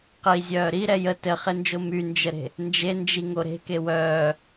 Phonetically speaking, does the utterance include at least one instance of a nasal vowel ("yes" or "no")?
no